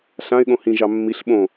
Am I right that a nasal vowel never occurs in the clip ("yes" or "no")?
no